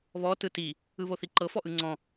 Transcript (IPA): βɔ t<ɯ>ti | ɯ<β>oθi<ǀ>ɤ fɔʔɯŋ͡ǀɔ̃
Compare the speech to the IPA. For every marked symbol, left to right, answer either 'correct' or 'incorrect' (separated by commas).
correct, correct, incorrect